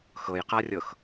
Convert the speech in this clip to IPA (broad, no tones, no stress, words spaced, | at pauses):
xɤjqarʲɤx